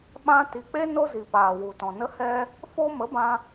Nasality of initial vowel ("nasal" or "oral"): nasal